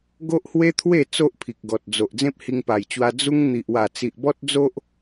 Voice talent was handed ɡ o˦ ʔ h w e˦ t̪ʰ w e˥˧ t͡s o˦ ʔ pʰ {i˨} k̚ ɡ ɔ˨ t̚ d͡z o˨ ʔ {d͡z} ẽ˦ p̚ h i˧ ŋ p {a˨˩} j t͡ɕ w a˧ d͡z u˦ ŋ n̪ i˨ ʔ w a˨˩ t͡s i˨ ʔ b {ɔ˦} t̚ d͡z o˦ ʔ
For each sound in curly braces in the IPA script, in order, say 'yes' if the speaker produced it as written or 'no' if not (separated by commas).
yes, yes, yes, yes